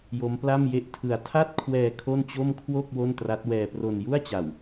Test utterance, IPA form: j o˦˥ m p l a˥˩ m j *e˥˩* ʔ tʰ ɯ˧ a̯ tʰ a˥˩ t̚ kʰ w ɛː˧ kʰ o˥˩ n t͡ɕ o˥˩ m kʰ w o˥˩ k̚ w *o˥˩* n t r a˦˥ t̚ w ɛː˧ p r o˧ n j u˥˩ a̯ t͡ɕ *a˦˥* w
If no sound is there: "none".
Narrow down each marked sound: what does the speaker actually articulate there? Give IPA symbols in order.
e˥˩, o˥˩, a˨˩

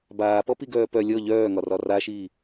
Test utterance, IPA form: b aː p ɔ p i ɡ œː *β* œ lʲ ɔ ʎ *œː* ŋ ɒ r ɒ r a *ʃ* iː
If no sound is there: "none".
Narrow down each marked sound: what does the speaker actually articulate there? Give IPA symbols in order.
p, œː, ʃ

